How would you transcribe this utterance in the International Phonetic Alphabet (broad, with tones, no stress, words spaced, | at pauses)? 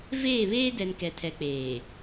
veː˦˨βeː˦dɛ˨n kɛ˨tʰɛ˨ k͡peː˨